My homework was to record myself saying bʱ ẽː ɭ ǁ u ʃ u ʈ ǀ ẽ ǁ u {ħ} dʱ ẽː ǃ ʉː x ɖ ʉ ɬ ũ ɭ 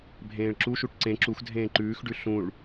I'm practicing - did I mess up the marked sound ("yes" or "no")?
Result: yes